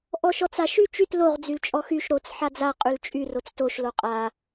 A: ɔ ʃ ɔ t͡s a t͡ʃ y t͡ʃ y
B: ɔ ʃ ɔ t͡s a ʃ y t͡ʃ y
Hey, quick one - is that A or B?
B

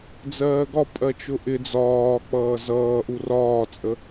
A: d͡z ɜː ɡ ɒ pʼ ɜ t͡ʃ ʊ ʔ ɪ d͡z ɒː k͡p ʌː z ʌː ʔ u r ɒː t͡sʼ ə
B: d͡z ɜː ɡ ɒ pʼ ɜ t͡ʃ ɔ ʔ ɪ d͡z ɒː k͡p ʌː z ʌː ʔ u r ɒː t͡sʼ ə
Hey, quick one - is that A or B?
A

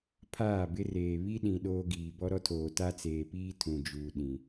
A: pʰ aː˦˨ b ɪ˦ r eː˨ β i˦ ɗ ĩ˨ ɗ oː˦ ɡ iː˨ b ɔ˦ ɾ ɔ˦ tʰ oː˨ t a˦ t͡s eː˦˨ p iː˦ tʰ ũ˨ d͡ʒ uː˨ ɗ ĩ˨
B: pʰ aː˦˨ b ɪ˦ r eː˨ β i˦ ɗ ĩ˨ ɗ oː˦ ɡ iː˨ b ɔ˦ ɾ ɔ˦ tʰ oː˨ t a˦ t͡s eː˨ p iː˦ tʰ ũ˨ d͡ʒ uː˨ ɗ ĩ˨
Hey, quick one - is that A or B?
B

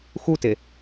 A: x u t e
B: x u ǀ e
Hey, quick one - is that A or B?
A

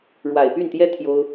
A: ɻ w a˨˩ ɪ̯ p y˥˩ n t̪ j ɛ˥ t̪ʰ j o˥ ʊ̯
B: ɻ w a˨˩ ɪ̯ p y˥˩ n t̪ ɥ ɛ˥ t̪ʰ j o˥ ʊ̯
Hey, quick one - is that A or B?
A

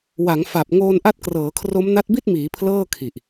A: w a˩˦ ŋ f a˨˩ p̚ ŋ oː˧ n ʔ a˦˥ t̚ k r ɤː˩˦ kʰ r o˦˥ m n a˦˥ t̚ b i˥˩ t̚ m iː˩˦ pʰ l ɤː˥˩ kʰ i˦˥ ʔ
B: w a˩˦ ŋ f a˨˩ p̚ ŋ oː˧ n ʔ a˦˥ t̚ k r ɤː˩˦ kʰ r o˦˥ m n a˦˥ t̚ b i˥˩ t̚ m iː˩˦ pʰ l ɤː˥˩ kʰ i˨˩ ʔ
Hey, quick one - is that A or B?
B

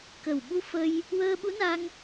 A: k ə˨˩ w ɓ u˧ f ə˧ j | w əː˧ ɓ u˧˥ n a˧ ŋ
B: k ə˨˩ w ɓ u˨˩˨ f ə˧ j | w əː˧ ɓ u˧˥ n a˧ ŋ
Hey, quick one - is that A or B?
A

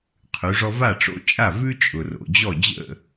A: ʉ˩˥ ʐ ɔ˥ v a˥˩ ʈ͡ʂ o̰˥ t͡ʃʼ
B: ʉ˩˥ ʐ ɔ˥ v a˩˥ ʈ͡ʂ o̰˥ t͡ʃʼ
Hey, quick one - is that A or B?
A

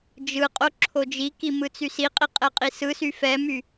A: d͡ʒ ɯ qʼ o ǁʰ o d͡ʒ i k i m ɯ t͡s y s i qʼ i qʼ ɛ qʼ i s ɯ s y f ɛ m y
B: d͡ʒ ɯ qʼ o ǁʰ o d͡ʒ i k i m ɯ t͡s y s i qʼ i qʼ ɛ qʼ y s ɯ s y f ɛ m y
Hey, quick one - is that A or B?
A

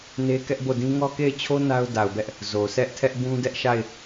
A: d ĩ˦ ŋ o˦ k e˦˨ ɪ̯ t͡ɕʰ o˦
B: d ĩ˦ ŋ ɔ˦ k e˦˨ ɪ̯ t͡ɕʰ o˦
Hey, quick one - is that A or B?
B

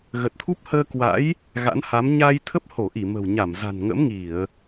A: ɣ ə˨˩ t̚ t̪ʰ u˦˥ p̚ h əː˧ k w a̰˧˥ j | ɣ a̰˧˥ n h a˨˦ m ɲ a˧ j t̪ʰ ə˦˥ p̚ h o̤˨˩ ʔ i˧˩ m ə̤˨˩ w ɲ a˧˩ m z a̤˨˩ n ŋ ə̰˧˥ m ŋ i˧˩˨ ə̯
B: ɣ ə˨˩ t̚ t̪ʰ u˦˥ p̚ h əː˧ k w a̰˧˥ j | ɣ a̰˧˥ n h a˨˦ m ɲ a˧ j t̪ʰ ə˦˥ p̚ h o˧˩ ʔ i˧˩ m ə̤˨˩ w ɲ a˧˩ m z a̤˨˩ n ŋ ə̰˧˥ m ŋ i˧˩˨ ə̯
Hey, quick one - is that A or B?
B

